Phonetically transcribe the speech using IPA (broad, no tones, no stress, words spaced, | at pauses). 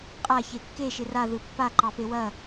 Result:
qʼa çekːe ʃɪraðɯ pːaǃɑpe wɐ